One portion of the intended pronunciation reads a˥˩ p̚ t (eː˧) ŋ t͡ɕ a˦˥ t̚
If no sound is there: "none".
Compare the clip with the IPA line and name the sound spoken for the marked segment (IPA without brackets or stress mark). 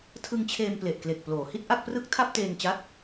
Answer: eː˧